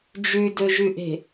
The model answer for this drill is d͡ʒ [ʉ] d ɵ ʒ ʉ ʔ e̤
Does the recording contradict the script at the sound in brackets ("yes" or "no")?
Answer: no